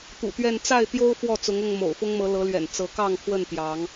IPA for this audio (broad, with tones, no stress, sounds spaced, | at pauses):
t̪ ṵ˨˩ t̪ ɥ ɛ˥˨ n t͡s a˥˨ ɪ̯ t̪ j o˦ ʊ̯ f w ɔ˥˨ t͡s ʊ˨˦ ŋ ʊ˥˨ ŋ m o̰˨˩ ʊ̯ f ʊ˦ ŋ m ɤ˨˦ l ɤ˨˦ l ɥ ɛ̰˨˩ n t͡s ɤ˨˦ k ɑ˥˨ ŋ pʰ w ə˥˨ n t̪ j ɑ˨˦ ŋ